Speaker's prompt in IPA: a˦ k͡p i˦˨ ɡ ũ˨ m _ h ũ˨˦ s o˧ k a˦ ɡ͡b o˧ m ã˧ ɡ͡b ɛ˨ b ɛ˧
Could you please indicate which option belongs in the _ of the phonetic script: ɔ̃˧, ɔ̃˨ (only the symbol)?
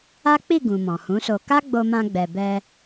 ɔ̃˨